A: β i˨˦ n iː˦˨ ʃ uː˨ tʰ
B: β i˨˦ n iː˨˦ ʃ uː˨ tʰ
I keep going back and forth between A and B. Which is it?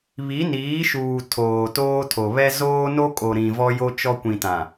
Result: B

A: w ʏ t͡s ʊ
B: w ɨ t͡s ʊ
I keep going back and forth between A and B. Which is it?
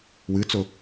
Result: B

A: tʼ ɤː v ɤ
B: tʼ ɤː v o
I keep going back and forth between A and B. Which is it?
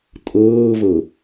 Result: A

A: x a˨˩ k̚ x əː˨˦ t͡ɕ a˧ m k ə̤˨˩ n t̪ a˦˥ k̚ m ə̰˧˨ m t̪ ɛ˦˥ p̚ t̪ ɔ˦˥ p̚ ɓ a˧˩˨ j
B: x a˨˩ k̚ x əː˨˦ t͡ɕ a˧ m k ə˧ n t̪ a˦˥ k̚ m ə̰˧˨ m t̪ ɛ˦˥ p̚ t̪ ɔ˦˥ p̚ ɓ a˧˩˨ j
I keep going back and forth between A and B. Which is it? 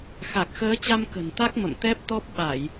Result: A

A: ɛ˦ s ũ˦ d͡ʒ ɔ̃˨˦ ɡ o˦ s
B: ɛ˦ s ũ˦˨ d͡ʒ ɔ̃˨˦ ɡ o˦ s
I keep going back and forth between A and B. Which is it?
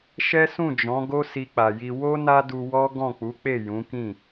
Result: B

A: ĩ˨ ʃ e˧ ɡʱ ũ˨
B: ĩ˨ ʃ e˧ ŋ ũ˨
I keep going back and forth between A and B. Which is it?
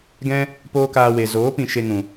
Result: B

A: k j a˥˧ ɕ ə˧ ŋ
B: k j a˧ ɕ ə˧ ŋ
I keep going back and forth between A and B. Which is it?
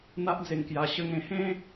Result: B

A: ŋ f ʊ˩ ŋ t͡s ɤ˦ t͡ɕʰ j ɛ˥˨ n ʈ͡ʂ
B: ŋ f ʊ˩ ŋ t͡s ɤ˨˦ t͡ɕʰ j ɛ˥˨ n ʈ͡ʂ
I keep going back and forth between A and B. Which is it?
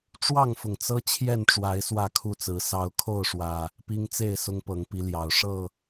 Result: A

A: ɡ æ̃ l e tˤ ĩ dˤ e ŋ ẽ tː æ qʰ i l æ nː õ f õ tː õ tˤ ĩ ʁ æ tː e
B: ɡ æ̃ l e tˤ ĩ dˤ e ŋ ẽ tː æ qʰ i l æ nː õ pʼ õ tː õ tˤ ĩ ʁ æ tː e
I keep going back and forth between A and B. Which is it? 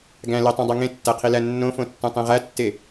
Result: A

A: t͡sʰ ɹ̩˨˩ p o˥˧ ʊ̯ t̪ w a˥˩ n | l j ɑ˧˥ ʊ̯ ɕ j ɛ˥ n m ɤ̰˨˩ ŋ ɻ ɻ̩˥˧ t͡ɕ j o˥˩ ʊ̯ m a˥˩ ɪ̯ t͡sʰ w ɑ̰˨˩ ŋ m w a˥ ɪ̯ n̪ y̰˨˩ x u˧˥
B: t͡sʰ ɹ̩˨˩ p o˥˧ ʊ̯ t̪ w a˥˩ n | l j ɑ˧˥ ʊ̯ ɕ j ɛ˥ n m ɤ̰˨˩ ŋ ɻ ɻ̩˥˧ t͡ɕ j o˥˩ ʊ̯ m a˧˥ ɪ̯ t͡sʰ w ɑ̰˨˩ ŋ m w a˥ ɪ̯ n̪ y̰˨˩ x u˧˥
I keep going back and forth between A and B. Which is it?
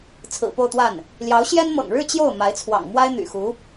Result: B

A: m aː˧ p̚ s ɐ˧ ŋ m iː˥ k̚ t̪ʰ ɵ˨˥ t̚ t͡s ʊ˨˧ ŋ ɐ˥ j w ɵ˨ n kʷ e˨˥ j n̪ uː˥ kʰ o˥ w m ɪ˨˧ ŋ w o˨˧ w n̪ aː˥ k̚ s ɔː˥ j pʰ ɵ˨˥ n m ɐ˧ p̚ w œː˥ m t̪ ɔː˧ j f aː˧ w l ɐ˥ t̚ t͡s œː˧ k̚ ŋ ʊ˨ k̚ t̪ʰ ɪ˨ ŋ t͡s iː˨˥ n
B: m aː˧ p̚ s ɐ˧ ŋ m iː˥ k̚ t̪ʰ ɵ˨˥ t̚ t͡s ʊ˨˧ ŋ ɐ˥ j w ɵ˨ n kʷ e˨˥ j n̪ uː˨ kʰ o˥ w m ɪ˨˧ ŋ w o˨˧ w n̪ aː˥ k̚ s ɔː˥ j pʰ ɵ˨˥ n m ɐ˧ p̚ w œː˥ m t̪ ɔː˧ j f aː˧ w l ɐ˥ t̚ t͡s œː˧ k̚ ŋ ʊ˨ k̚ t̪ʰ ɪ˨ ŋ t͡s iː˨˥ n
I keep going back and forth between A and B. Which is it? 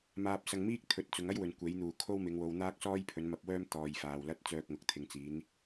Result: B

